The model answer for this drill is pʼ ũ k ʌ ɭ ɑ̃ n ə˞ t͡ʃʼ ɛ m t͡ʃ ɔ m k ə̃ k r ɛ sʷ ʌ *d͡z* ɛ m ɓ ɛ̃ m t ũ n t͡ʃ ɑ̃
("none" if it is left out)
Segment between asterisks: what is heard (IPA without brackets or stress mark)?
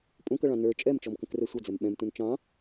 d͡z